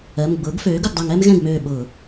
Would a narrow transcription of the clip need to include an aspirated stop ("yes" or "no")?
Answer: no